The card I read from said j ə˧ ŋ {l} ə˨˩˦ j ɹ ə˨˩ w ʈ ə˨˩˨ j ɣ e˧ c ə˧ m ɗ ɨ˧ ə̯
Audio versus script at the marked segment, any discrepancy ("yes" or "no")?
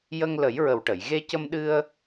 no